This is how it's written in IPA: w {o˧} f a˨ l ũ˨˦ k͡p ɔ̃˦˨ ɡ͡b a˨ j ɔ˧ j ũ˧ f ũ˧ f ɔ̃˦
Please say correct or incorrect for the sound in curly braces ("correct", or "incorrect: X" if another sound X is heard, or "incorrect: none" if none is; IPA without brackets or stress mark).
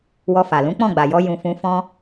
incorrect: ɔ˧